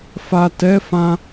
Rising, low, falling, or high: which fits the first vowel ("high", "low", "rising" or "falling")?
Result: low